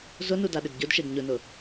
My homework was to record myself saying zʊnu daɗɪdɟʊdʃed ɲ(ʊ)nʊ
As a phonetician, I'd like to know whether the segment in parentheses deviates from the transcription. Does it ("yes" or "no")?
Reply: no